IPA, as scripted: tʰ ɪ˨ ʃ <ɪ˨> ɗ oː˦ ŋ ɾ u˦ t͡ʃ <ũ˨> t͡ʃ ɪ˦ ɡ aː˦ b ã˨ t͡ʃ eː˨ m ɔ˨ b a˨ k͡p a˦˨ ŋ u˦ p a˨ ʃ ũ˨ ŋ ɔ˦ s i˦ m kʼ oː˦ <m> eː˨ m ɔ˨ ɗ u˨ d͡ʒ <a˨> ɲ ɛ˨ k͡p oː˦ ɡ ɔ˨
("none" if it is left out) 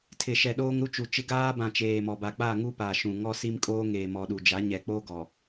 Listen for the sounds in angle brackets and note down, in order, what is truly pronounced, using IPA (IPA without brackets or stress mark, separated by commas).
ɛ˨, u˨, ŋ, a˨˦